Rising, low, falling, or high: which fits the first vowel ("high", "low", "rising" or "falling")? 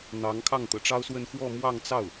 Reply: rising